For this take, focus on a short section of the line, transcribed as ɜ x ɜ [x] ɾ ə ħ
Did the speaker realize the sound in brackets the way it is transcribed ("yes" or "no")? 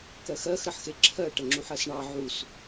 yes